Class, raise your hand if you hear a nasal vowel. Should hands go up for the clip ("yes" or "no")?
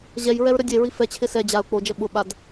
no